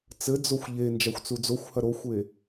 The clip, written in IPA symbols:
t͡sɘd͡zoxʷ ʎe nd͡ʒaxʷt͡sud͡zoxʷhɐ ɾoxʷe

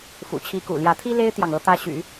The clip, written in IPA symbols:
fṵ˨˩t͡ɕʰi˧˥kṵ˨˩ljä˧˥ t̪ʰi˥le˥ɪ̯t̪jɑ˨ŋ ɤ˥ t̪ä˥ɕy̰˨˩˦

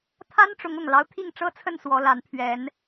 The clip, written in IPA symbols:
t̪ʰa˦nʈ͡ʂʊ˨˦ŋʊ˨˩ŋlɑ˦ʊ̯ t̪ʰi˥˨ŋʈ͡ʂɤ˦t͡sʰə˥˨n swɔ˨˦la˨˦npʰɥɛ˨˦n

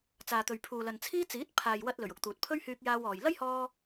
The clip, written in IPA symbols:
t͡saː˨t̪ɵ˨ɥ pʰuː˨lɐ˨nt͡sʰiː˥t͡siː˨˥t̚ pʰaː˨jwɐ˧t̚lɵ˨˩ɥ ʊ˧k̚t̪uː˨t̚ pʰɵ˥ɥhyː˧k̚jaː˧w ɔː˨j lɐ˥jhɔː˧

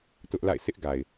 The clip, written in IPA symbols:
tʊ˦ʔla̰˦˨ɪ̯ sʰɪ˦ʔ ɡa˨ɪ̯

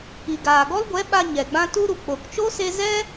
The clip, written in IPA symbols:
i˨ɡaː˨ɡɔ˦lɡʷɛ˨˦ ɓa˧ ɲɛ˨ɡ͡bã˦ tu˦ɾu˨ k͡po˨kt͡ʃo˦se˧ zɛ˦

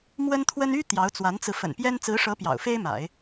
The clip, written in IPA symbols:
mwə˥nt̪ʰwə˥n y˥ t̪jɑ˧˥ʊ̯t͡swa˧˥nt͡sɹ̩˧ fə̰˨˩n pjɛ˥n t͡sɹ̩˧˥ʂɤ˧˥ pjɑ̰˨˩ʊ̯fe˥ɪ̯ma̰˨˩˦ɪ̯

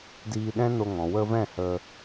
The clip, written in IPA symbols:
diː˧ɗɛ̃˦no˧ŋɔ̃˨ wə˧vɛ̃˦˨hə˧

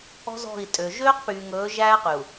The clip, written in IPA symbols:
ɔ̤˦zɔ̤˦˨i̯tʼø˨ ʒøː˦qpyː˨ŋɵː˨˦ ʒæː˦qy˨u̯

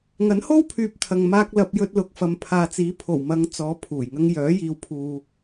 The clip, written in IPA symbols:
ŋɐ˨˥nho˥wpʰyː˨p̚ t̪ʰɐ˨ŋmaː˧k̚ lɐ˧p̚jɵ˧t̚lʊ˨k̚ fɐ˨mpʰaː˨t͡siː˨˥ pʰo˨˩wmɐ˨˧ŋ t͡sɔː˨˧pʰuː˨˩jŋɐ˧ŋ jœː˨˥jiː˨w pʰuː˨

